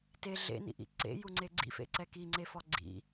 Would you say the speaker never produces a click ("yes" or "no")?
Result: no